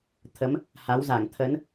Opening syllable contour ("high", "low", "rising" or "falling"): rising